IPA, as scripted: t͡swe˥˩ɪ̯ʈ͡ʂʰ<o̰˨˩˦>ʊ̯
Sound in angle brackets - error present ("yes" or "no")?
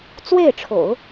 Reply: no